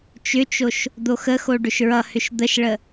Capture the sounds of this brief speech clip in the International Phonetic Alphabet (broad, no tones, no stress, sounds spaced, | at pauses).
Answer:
t͡ʃ ʏ t͡ʃ o ʃ | d̪ o x ə x o ɖ ʏ ʃ ɹ ʌ h ʏ ʃ d̪ ə ʃ ɭ ə